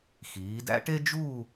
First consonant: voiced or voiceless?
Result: voiceless